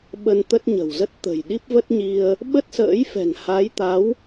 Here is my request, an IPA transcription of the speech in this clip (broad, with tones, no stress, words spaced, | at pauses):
ɓə˧nt̪ə˦˥t̚ ɲə̤˨˩wzə˦˥t̚ t̪ə̤˨˩jɗi˦˥p̚və˦˥t̚ ɲi˧ə̯ | ɓə˦˥t̚sə̰ː˧˥jfɛ̤˨˩ŋ ha˨˦jt̪a˨˦w